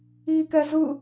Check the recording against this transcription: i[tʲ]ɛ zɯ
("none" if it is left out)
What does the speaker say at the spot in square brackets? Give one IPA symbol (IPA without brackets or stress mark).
k